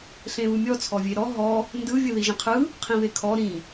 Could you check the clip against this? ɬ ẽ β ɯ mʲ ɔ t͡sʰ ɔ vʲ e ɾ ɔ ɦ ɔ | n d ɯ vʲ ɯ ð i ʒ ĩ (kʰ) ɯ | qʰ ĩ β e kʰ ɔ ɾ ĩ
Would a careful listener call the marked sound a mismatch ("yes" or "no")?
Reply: yes